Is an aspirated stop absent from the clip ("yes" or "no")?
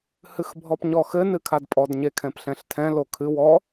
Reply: no